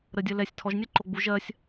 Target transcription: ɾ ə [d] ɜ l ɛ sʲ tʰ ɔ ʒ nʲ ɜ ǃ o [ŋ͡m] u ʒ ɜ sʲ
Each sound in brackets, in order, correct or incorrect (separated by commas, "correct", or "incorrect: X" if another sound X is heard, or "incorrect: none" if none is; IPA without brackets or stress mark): incorrect: dʲ, incorrect: ɡ͡b